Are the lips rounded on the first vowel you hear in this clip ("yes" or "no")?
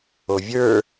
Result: yes